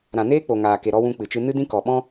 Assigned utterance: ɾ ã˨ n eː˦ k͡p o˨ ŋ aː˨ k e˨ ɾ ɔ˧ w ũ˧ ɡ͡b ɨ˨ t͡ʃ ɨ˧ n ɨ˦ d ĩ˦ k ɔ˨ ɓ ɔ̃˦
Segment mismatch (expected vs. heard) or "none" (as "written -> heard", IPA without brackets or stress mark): ɡ͡b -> k͡p